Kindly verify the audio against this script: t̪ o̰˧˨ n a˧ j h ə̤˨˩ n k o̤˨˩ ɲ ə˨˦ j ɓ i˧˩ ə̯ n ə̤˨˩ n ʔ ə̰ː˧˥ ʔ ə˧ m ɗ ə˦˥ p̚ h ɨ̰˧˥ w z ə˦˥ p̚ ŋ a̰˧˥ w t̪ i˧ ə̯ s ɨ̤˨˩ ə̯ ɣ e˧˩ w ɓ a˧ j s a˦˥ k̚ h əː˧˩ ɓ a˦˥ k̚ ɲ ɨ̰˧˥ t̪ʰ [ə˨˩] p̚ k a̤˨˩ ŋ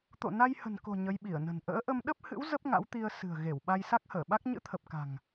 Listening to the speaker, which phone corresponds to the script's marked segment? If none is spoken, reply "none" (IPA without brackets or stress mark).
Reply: ə˨˩